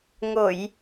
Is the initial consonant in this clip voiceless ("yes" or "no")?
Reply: no